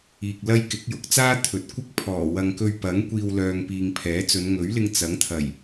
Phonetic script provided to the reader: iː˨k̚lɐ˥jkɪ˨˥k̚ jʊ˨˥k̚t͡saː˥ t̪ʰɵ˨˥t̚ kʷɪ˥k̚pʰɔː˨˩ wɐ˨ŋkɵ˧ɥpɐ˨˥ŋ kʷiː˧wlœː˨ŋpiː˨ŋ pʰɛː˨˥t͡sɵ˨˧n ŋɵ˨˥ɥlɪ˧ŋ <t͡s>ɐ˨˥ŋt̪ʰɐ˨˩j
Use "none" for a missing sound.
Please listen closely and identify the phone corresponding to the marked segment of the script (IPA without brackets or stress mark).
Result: t͡s